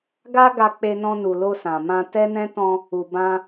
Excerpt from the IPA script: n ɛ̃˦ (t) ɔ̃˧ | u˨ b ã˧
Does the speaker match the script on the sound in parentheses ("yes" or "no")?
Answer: yes